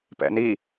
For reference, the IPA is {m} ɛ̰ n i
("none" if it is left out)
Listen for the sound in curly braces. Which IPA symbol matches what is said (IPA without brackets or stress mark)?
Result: p